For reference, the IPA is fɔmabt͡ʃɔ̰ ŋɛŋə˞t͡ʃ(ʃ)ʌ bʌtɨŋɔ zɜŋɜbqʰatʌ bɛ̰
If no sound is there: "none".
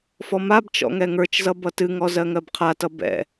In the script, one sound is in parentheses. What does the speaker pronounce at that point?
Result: z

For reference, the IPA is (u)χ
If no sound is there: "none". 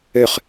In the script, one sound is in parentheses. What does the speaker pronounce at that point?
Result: ø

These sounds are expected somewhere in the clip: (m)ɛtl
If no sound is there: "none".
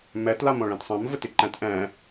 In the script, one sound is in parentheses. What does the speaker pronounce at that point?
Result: m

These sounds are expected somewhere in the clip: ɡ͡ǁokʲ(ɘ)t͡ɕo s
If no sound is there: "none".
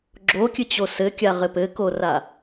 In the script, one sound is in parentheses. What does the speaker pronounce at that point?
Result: ɘ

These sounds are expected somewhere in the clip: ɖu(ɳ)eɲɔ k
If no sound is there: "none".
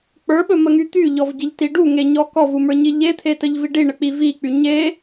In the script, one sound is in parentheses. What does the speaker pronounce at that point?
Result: ŋ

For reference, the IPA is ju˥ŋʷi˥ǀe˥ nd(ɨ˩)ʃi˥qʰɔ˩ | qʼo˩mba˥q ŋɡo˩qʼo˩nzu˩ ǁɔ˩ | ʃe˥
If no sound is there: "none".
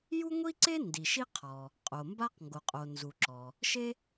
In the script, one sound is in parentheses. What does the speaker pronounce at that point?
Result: i˩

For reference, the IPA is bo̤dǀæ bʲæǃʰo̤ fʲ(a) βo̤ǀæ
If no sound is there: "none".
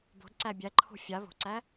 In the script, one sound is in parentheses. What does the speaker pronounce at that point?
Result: a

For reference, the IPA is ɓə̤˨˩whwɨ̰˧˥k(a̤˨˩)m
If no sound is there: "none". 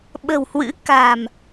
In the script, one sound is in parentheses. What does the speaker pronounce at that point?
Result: a̤˨˩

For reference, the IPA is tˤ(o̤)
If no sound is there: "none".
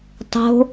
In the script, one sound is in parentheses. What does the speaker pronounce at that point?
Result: o̤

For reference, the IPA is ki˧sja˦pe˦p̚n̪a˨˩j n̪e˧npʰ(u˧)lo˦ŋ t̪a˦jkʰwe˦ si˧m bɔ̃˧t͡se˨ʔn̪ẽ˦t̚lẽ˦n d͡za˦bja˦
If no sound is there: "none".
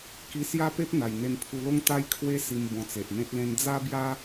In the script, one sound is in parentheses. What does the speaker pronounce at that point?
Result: u˧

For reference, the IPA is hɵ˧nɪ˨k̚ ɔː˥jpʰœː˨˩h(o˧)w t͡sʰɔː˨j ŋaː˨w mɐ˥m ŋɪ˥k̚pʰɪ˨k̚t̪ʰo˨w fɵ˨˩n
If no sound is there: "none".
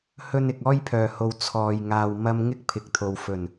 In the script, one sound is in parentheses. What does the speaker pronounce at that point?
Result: o˨˧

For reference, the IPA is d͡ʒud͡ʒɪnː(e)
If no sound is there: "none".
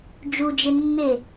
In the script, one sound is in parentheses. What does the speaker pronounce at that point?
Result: e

